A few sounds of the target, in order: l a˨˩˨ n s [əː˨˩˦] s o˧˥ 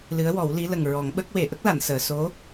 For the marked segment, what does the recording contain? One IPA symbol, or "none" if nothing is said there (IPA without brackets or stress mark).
əː˨˩˨